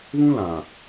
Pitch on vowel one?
high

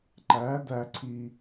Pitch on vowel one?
rising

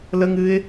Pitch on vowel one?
high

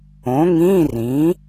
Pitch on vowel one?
rising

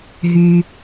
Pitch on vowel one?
low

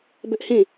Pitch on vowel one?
high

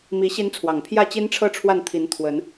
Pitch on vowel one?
rising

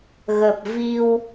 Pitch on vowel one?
low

